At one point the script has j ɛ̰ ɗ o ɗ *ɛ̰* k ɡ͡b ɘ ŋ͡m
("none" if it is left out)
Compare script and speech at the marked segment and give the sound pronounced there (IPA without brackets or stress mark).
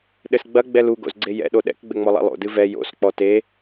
ɛ̰